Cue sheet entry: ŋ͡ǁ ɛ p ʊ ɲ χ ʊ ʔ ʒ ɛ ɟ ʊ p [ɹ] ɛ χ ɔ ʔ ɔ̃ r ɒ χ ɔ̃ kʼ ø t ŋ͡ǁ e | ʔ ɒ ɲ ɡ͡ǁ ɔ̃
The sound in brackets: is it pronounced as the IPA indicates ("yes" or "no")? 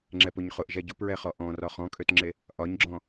yes